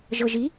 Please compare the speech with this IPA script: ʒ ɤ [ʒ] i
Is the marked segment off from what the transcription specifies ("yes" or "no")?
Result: no